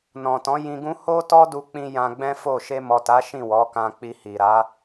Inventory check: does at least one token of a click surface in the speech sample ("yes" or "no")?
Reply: no